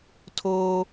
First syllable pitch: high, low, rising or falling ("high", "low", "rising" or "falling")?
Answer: high